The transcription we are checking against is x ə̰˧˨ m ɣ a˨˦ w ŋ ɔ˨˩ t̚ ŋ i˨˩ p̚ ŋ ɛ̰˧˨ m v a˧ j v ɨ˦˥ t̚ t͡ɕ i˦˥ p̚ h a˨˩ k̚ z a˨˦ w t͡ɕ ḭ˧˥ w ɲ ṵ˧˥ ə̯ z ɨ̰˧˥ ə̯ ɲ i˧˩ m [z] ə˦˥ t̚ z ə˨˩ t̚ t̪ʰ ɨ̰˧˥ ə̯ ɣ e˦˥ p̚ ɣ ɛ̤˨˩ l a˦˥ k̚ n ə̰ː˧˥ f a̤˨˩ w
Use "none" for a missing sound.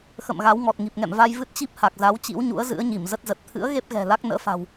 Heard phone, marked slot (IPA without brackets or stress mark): z